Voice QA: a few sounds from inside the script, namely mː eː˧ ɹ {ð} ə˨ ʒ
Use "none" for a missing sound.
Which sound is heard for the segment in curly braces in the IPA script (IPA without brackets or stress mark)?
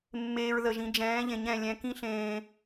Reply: ð